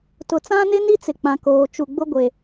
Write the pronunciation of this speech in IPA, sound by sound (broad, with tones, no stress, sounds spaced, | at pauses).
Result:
t ʊ˨ t͡s ã˦ n ɪ˦ n i˦ t͡s ɪ˨ k͡p ã˨ k oː˨ t͡ʃ u˨ ɡ͡b ʊ˦ ɡʷ e˨